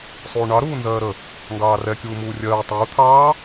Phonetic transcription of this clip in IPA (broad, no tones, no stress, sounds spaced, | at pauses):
sˤ uː ɳ ɑ ɾ uː n z ɜː ɾ ə | ŋ ɡ ɑː r ɛ kʲ uː m uː rʲ ɜː tˤ uː t̪ʰ ɑː